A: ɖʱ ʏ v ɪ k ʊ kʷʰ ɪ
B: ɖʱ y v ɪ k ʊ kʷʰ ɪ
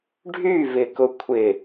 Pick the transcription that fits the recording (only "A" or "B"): B